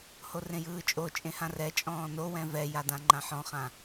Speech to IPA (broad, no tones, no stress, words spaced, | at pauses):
horẽjɯːt͡ʃʼo t͡ʃʼẽhãrɛ t͡ʃʼɔ̃ːnowɛ̃ vɛja dãŋ͡ǃãħɔ̃χã